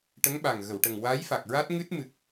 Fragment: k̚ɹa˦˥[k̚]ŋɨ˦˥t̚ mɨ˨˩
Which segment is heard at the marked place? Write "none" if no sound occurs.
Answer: t̚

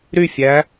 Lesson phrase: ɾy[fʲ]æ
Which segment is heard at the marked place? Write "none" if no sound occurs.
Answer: fʲ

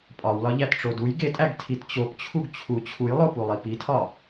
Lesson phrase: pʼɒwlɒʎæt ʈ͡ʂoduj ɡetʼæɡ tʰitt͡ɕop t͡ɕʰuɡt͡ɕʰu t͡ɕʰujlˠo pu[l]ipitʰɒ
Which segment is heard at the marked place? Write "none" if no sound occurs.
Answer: lˠ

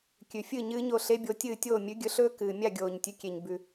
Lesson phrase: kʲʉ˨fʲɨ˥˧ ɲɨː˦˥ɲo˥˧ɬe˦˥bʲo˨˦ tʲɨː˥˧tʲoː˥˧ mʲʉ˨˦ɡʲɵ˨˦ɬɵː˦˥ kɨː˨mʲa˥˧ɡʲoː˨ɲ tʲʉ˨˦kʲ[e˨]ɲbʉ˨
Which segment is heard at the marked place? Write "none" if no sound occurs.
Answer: e˨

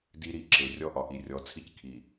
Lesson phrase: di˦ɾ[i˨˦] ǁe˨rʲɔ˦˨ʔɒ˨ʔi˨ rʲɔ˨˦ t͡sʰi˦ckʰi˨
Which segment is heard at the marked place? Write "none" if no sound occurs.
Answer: i˨˦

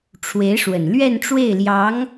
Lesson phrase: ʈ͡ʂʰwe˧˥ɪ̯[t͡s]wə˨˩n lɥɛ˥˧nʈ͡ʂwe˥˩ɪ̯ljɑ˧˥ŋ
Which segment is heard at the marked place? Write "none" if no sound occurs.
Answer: ʂ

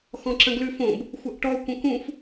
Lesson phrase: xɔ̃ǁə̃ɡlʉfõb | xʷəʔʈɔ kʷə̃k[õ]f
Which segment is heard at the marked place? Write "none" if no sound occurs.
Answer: ũ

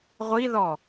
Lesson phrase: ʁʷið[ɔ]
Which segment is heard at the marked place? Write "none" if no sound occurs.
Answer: ɔ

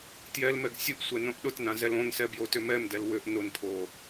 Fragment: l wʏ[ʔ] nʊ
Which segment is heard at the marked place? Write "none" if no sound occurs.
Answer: ʔ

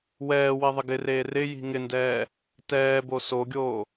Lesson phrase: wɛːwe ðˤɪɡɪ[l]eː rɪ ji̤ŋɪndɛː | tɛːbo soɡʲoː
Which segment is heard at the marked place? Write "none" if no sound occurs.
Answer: r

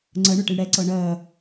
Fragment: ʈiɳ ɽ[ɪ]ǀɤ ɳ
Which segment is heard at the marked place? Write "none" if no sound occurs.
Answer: ɛ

